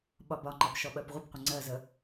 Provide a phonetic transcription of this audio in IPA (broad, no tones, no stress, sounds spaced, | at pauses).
ɓ ɒ b ɒ ŋ͡ǃ ɑ p ʃ ɔ ɓ ɜ p ʁʷ ə p qʷ ə ŋ͡ǀ ɜ z ə